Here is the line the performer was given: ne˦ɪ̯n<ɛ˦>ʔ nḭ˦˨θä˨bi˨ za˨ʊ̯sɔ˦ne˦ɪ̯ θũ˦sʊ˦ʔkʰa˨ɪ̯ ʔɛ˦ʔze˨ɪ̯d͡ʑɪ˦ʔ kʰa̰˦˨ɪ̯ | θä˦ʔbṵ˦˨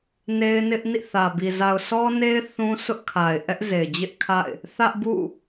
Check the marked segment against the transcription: incorrect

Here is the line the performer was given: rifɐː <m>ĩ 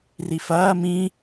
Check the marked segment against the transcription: correct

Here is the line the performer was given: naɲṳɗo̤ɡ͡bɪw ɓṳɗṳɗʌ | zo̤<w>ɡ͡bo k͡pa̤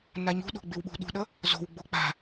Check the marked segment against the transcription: correct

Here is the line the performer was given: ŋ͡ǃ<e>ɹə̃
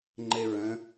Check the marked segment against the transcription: correct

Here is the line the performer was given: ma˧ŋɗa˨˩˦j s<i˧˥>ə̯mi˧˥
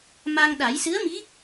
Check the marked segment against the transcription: incorrect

